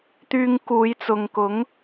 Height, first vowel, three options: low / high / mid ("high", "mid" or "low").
high